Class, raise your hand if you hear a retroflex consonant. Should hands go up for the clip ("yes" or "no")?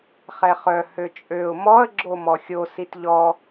no